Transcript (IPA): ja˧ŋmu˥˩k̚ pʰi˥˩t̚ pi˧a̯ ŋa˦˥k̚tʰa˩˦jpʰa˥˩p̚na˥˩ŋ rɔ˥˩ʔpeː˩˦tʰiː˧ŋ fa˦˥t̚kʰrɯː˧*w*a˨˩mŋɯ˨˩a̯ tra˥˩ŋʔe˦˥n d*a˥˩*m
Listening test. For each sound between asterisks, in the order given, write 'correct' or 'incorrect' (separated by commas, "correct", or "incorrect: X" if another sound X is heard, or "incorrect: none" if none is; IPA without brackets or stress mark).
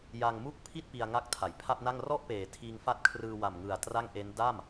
correct, correct